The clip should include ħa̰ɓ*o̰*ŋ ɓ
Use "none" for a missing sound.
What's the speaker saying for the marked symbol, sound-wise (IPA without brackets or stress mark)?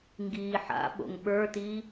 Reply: o̰